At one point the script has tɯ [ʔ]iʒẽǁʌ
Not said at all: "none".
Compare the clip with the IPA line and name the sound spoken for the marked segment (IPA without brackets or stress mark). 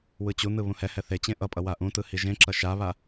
h